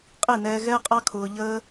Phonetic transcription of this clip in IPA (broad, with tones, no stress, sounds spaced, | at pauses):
qʼ i˦˨ n ɛː˧ ɣ ɛː˦ qʼ ɑ˦ kʰ ʊː˧ ʎ əː˦